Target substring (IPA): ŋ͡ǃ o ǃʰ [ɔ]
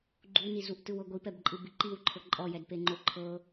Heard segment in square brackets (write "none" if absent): ɤ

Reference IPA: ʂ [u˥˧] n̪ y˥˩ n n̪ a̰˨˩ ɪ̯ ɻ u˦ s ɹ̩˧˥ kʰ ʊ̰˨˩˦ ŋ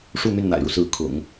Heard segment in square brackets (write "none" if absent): u˥˧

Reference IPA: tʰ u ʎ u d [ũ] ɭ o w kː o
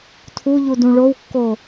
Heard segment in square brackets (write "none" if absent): ũ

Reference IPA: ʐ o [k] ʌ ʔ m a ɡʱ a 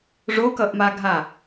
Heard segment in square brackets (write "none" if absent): k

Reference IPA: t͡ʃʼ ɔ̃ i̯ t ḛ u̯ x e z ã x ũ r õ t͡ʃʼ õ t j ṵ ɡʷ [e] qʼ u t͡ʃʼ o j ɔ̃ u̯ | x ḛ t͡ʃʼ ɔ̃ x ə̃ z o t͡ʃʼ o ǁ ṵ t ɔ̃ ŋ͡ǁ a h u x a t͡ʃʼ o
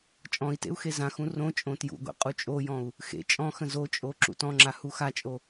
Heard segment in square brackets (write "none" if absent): ḛ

